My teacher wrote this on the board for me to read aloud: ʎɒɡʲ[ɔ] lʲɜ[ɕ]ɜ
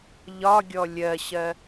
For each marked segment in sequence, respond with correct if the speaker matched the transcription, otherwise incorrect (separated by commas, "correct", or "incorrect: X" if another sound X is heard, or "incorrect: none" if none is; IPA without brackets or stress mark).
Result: correct, correct